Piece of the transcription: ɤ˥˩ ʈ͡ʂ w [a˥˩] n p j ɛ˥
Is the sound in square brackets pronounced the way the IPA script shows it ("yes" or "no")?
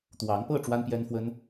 no